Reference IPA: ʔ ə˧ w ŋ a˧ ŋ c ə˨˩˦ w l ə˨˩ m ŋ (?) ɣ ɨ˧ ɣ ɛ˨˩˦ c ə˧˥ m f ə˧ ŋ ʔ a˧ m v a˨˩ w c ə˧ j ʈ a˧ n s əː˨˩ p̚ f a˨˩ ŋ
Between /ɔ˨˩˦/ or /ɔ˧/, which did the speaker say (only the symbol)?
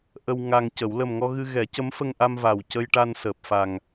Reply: ɔ˧